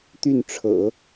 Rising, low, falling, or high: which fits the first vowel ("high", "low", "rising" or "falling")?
falling